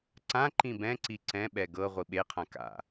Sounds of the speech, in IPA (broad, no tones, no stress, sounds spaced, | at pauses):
ǀ ã ǃ ĩ b ɛ̃ ǀ i ǀ ɛ̃ ɓ ɛ ɡ ɤ ʁʷ i ɓ e qʰ ã k a̰